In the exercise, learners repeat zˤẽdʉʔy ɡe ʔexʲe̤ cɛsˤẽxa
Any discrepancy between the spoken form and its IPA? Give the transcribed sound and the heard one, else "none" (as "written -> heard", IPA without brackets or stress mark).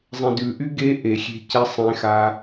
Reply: none